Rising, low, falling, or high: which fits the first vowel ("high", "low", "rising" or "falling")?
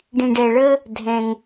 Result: low